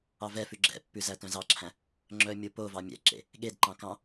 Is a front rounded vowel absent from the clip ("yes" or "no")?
no